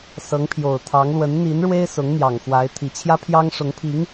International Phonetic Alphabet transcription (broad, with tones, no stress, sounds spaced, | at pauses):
s ɤ˧˥ ŋ pʰ j o˨˩ ʊ̯ t̪ʰ ɑ˧˥ ŋ l w ə˧˥ n n̪ i˧˥ n ɻ w e˥ ɪ̯ s ʊ˧˥ ŋ n̪ j ɑ˨˩ ŋ x w a˧˥ ɪ̯ t̪ʰ i˨˩ t͡ɕʰ j ä˥ pʰ j ɑ˥ ŋ ʂ ʊ˧˥ ŋ pʰ i˧˥ ŋ